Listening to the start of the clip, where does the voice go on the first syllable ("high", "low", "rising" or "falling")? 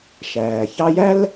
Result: low